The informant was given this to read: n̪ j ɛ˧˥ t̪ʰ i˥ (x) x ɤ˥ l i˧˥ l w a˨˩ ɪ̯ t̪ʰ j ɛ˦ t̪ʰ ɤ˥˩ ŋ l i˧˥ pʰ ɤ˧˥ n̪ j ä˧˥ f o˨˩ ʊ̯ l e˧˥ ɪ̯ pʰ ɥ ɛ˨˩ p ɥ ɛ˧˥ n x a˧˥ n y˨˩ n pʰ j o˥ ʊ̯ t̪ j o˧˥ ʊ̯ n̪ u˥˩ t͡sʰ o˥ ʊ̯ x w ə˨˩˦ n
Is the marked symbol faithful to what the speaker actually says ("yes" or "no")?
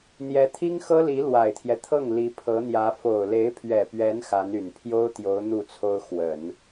no